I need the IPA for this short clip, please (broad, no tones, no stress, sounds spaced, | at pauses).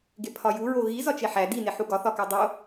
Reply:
ɡ e pʰ ɒ j u ɹ o ɣ i z ɒ t͡ʃ e ħ æ d i n e ħ u ɡ ɒ θ ɒ k æ dˤ o